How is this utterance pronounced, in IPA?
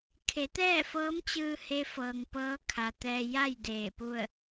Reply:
kʰ e˩˧ t̪ ɛː˥˨ f ɤː˧˥ m t͡ɕ ɯː˧ h e˧˥ f ɤː˩ ŋ p ɤː˧˥ kʰ a˩ t̪ ɛː˧ j a˥˨ j d eː˧˩ p u˥˨ ə̯

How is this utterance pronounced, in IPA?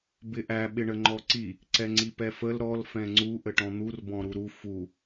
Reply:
b ɪ ʔ æ ɓ ɪ ɳ ə ŋ͡ǃ ɔ ǀ i | ǀ ɛ ŋ͡ǀ i p ɛ f ə l ɾ ɔ l f ɛ̃ ŋ͡ǀ u ʔ ə ʈ ɔ̃ n̪ u r b ɔ̃ ɾ u ɾ u f u

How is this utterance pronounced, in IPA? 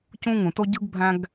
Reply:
c ũ˥ ŋ ũ˩ t o˥ ɟ ɯ˥ ɡ bʱ æ̃˥ ɡ

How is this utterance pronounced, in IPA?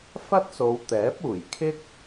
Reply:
f ɐ˥ t̚ s o˨˧ w t̪ ɛː˨˥ p̚ uː˨˩ j kʰ ɪ˥ k̚

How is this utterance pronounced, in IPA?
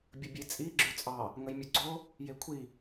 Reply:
bʲ ə bʲ e t͡sʼ i ɡ͡ǁ ʉ t͡sʼ ɑ | ŋ ə j mʲ ɯ ɡ͡ǀ o | j e kʷʰ i

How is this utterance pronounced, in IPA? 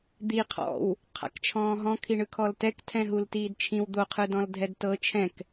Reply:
d̪ i qʰ ɔ̰ w | qʰ a̰ k t͡ʃʰ ɔ̃ː ɦ ɔ̃ kʰ i ɳ ɯ kʰ ɔ l t ɛ k tʰ ɛ̃ ɦ u l t iː d t͡ʃʰ ĩ w d̪ o qʰ ɯ d ɔ̃ l dʱ ɛ d t ɤ t͡ʃʰ ɛ̃ k

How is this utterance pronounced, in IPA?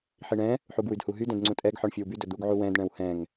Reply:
ħ i ɳ ɛ̃ | ħ u ɡ w y d h u ɦ y d ɛ̃ d ŋ͡ǀ ũ tʼ ɛ ɡ ħ ɔ ɳ fʲ ɵ w b y d ɵ d̪ u ɡ ʕ u w ɛ̃ d ɳ ɛ̃ w h ɛ̃ ŋ

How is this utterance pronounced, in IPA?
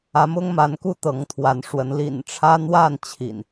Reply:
ä˨˦ m ʊ˦ ŋ m a˨˦ n k u˥˨ t̪ ɤ˨˦ ŋ t̪ʰ w a˨˦ n ʂ w ə˨˦ n l ḭ˨˩ n ʈ͡ʂʰ ä˦ n̪ w a˥˨ n t͡ɕʰ ḭ˨˩ n

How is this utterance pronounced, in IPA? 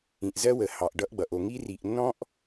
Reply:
ĩ˨ ʔ z ɜ˦ w ə˨ h ɑ˨ ʔ ɖ ʌ˦ ʔ ɡ͡b ʌ˨ ʔ o˨ ŋ i˦ r i˨ ʔ nː ɔ̃˦ ʔ

